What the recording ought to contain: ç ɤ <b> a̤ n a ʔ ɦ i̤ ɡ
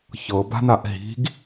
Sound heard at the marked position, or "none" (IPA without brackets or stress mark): b